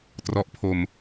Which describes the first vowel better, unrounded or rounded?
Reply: rounded